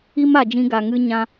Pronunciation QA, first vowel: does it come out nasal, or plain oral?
oral